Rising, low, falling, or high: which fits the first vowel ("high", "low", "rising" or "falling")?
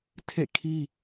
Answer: falling